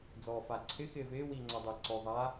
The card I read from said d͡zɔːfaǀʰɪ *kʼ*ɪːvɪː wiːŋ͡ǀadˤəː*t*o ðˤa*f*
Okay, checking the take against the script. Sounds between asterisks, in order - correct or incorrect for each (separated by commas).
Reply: incorrect, incorrect, incorrect